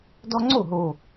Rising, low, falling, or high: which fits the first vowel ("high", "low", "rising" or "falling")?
high